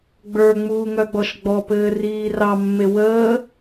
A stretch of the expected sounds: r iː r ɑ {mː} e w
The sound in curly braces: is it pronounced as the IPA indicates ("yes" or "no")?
yes